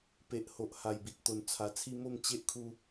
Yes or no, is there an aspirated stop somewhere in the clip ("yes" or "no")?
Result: yes